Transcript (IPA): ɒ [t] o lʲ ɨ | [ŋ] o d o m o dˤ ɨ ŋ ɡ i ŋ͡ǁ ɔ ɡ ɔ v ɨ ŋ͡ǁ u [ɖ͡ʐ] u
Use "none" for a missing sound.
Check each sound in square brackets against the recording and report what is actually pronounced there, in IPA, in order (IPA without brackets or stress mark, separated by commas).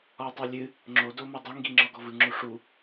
tˤ, ŋ͡ǁ, ʂ